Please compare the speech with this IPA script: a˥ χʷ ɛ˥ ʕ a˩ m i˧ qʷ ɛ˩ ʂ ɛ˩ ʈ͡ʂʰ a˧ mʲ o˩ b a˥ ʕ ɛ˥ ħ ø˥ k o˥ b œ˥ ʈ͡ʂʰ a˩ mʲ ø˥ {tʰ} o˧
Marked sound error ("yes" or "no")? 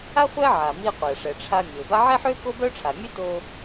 yes